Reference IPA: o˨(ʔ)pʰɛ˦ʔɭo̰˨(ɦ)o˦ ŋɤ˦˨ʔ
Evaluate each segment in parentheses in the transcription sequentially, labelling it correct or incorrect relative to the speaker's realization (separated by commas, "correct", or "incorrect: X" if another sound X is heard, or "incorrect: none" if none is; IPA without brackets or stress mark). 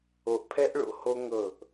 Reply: correct, incorrect: h